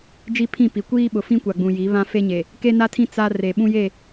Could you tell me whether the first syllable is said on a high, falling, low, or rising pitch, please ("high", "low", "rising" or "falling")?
high